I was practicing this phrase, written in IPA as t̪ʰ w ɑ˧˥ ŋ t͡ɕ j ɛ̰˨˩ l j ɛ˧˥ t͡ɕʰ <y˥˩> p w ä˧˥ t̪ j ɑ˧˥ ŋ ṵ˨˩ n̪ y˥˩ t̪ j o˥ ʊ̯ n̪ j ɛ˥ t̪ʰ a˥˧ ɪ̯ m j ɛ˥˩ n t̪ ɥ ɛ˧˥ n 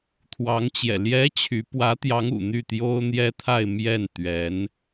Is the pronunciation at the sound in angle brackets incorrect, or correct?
incorrect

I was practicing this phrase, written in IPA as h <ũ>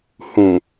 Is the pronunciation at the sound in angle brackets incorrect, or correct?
correct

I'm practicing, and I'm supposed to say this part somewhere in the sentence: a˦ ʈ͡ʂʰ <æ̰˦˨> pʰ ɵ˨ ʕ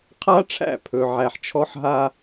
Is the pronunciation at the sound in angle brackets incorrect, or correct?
correct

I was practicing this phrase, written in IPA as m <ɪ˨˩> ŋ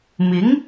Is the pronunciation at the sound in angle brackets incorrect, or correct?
incorrect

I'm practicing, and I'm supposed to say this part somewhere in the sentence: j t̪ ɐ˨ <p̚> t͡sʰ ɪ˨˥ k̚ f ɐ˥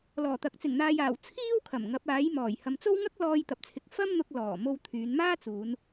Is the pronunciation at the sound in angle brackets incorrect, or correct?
correct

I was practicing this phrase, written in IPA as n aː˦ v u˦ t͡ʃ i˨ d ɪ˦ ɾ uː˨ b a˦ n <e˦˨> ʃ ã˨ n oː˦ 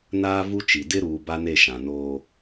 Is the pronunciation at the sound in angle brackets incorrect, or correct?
correct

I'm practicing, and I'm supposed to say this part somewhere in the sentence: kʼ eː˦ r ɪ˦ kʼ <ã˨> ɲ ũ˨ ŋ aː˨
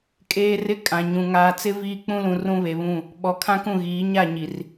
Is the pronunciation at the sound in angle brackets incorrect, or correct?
correct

